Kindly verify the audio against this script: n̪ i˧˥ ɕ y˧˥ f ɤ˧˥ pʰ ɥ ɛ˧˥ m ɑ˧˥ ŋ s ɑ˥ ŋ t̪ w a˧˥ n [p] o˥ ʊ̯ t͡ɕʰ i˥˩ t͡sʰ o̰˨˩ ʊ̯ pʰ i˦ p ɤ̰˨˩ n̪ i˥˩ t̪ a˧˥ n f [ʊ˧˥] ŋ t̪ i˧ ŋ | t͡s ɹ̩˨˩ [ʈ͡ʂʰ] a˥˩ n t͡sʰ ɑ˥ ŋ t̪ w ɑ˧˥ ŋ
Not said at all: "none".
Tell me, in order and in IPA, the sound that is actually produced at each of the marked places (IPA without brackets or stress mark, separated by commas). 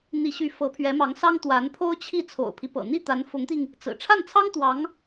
pʰ, ʊ˧˥, ʈ͡ʂʰ